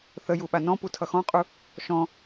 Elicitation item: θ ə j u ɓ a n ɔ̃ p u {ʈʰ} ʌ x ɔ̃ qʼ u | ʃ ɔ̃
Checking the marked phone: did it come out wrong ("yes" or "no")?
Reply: yes